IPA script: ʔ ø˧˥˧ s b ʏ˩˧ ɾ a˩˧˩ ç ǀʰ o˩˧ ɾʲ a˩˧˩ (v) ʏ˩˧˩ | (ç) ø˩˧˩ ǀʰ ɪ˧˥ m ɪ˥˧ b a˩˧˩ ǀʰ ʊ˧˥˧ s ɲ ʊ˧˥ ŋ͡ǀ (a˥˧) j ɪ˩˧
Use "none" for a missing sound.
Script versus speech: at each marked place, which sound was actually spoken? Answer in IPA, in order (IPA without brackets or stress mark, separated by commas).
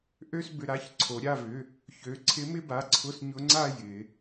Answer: v, ç, a˥˧